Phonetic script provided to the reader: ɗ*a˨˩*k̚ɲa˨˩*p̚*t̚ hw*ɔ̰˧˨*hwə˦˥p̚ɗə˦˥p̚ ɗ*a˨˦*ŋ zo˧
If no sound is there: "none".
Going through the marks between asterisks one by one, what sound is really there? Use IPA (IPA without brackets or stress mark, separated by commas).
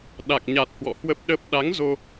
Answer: a˨˩, none, ɔ̰˧˨, a˨˦